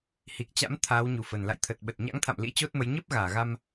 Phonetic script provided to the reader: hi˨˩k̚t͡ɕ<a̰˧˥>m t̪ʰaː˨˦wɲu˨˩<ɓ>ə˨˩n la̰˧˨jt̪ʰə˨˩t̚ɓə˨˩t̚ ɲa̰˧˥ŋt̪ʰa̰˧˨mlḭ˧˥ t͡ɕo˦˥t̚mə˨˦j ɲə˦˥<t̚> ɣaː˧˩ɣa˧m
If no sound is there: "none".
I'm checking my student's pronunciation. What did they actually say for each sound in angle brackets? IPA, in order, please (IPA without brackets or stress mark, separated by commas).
a̰˧˥, f, p̚